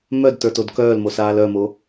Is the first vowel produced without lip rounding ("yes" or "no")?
no